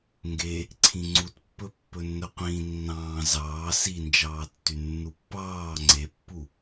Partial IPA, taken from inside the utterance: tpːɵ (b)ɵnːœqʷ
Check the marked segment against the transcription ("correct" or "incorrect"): incorrect